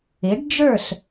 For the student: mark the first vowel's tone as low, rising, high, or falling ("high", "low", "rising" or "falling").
rising